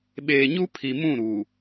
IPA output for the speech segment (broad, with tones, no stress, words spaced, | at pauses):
ɓeː˨ɲu˦ pʰi˨ mũ˦˨ɾu˨